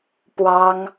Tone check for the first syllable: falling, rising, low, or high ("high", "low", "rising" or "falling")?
high